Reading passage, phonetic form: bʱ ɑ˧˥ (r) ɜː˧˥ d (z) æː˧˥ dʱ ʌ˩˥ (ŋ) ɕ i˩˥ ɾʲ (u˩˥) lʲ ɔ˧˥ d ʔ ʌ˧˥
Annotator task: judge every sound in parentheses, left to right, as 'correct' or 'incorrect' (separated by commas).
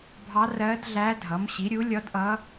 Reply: correct, incorrect, incorrect, correct